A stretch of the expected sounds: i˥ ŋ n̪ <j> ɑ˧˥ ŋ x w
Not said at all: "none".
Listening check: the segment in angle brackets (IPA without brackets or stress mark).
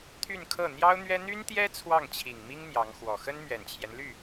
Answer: j